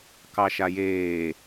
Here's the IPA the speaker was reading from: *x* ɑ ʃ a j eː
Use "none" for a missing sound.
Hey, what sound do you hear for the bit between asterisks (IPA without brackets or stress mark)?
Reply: k